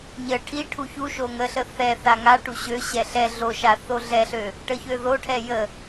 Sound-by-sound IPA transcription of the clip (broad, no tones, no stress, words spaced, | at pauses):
ɲə ʈʰiʈʰu çuʃo ŋəɬə θɛ θaŋaʈu ɕøɕɛ ɬɛ ɮoʃa θoɮɛɬø | ʈəçøðoʈʰɛ jə